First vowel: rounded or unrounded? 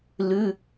rounded